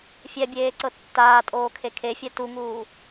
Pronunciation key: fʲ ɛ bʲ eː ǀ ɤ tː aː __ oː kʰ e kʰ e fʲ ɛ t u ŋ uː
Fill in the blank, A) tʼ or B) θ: A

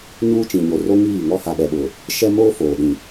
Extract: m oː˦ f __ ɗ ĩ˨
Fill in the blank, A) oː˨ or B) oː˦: A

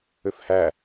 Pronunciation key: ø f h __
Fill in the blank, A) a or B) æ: B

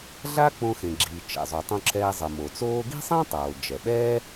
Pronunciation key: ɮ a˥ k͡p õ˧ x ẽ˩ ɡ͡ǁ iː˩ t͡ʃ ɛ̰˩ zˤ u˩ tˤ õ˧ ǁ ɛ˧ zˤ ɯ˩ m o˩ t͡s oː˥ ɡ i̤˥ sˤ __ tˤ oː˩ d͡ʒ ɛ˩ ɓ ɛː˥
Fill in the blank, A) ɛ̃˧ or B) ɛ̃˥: B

